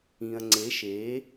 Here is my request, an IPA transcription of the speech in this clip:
ĩ˨ ɐ̯ ŋ͡ǀ e˨˦ ʃ eː˨˦

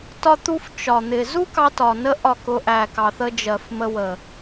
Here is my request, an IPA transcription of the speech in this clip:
t ɒ˦ t̪ u˦ f t͡ʃ ɒ˨ n̪ ɪ˨ z u˦ k ɑ˧ t ɒ˨ n ə˧ ʔ ɒ˦˨ k ʊ˧ ʔ æ˨ k ɑ˨ θ ə˧ d͡ʒ ɜ˨ f m ə˧ w ə˨

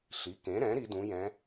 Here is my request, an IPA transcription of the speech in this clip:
ɬ i˩˧ k ẽ˩˧ ɾ ɛ̃˩˧ ɾ i˩˧ d ũ˩˧ j ɛ̃˩˧

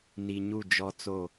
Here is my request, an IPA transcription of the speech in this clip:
n i˨ ɲ u˦˨ d͡ʒ ɔ˦ t͡s o˦˨

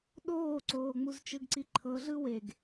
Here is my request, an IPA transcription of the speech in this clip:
ɗ oː ǀ oː ŋ͡m u z t͡ʃ ɯ ɡ ǀ i ǃʰ ɤ ɮ ɯ w e ɡ

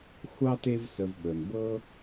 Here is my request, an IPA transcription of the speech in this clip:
xʷ ɑ˥ t e˦ v s ə˨ v ɓ ə˩ n b ɤ˦

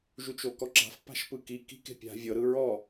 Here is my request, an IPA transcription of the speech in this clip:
ʒ u t͡ʃ o k ɔ ǁ a̤ f p a̤ ʃ p ɯ k i k i̤ k e̤ pʲ a̤ vʲ ɤ ɾ ɯ ɹ ɔ

